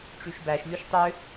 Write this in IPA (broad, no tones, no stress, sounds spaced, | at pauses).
ʈ͡ʂ y ʃ b æ ʃ lʲ u ʃ tˤ ø